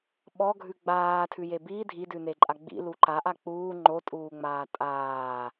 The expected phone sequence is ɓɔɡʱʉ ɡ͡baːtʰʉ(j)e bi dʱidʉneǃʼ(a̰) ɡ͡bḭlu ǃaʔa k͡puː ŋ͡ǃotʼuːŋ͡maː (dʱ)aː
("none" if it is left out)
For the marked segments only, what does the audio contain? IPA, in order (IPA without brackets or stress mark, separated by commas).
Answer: j, a, tʼ